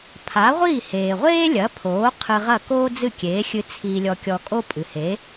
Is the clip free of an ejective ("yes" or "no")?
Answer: no